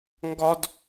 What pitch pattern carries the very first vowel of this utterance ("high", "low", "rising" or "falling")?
high